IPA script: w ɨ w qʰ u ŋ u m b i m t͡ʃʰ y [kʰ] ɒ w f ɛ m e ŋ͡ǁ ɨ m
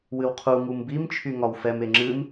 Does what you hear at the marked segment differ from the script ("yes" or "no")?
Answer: yes